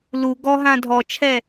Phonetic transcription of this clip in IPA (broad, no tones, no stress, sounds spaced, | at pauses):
l u ɡ ɔ ɦ ã dʱ ɔ t͡ʃʰ ɛ